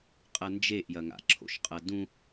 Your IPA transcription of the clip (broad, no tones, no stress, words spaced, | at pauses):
qʼɐnd͡ʒeʔjɐŋa̰ ǁʰo̰ʃqʼɐdũ